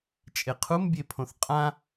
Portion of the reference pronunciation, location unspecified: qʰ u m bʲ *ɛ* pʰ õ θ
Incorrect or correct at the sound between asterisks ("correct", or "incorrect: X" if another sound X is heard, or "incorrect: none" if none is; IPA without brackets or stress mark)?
incorrect: e